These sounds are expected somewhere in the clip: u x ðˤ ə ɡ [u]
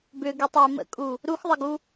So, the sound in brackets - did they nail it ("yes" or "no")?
yes